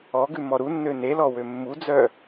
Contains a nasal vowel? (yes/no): no